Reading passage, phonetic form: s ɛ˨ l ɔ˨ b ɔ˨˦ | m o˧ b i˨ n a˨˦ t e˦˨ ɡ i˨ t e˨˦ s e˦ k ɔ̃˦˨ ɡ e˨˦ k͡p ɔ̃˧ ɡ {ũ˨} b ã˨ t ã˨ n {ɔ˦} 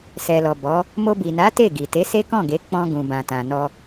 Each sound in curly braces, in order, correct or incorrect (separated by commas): correct, incorrect